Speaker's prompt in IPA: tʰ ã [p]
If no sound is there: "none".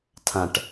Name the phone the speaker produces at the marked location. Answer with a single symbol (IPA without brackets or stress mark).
ʈ